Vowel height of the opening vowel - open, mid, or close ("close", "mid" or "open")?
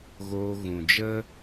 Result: mid